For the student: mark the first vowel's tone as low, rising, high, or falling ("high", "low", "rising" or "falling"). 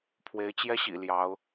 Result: rising